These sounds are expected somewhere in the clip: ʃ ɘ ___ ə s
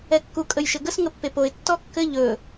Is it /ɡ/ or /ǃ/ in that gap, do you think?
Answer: ɡ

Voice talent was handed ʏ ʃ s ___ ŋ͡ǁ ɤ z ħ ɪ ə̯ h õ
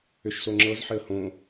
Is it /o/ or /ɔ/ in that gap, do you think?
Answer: o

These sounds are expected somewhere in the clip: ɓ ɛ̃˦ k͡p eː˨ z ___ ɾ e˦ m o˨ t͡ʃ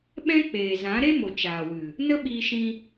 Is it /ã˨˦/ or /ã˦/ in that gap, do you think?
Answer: ã˨˦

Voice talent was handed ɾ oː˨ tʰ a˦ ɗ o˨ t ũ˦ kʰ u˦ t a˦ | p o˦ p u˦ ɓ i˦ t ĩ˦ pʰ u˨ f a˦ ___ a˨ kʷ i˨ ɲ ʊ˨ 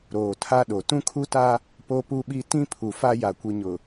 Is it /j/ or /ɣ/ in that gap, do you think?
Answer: j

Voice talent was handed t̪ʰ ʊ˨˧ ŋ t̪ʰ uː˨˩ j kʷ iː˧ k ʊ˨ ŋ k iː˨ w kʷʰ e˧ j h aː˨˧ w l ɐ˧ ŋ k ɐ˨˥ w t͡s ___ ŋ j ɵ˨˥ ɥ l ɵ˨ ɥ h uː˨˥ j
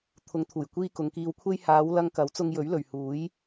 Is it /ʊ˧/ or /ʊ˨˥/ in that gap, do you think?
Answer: ʊ˧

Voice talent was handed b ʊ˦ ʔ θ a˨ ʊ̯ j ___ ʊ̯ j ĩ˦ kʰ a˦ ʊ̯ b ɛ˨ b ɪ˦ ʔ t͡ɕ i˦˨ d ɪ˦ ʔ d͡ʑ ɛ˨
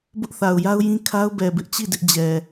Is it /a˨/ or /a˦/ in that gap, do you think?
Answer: a˦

